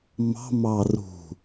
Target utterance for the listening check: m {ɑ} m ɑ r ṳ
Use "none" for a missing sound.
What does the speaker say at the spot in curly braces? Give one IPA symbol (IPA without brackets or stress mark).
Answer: ɑ̤